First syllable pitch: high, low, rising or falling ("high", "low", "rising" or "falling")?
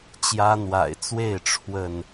high